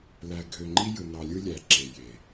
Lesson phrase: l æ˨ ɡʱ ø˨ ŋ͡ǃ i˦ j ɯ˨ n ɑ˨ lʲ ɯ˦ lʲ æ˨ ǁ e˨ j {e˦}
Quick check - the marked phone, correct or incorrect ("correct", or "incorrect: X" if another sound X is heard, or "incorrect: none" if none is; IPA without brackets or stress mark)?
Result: incorrect: e˨